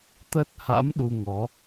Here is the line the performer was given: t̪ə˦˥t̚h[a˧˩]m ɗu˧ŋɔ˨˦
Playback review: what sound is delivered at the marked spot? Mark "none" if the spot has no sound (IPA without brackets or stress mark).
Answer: a̰˧˥